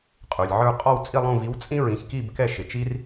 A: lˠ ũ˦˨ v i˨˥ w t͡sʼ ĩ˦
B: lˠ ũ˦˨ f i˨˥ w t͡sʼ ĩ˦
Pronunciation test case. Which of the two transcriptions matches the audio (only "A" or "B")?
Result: A